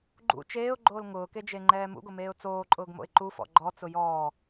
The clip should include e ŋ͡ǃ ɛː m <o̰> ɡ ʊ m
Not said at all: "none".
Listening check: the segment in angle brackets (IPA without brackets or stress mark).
ṵ